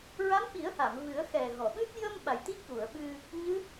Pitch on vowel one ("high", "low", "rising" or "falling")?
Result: rising